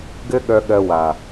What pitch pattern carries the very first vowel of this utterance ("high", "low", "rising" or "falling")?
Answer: high